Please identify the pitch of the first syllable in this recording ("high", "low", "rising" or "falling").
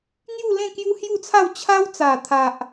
falling